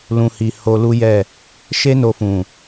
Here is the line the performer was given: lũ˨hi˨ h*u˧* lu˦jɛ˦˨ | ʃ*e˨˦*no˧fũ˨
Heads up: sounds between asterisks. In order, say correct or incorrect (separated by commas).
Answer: incorrect, incorrect